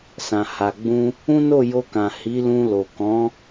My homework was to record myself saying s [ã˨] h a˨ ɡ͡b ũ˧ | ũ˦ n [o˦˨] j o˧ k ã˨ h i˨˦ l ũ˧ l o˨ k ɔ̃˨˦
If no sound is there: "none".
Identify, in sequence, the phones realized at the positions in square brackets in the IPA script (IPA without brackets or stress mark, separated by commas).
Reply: ã˨, o˦˨